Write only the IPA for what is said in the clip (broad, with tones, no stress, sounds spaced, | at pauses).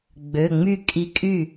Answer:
ɡ͡b ø˩˧˩ ŋ͡m y˥˩ kʼ i˧˥ kʼ y˥˩